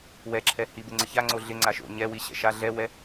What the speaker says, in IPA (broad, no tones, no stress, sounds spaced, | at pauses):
w ɛ ǁʰ ɛ h i b ɪ ŋ͡ǀ ɪ ç a ŋ͡ǀ o ɮ ɪ ŋ͡ǀ a ʃ o̰ ɲ ɛ w i ɕ ɛ̰ ʃ a ɮ ɛ w ɛ